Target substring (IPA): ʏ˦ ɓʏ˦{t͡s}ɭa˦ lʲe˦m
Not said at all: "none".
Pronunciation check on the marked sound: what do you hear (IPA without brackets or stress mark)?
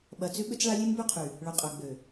t͡s